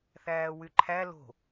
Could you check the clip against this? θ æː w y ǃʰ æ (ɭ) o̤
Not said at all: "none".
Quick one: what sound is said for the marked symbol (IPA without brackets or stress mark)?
l